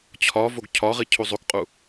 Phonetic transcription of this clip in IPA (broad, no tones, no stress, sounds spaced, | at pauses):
t͡ɕʰ ɒ v o ɡ cʰ ɒ ʁ i cʰ u zˤ o k qʼ u